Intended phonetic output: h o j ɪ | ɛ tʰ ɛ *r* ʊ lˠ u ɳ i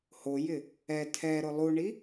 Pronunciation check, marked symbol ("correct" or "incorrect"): incorrect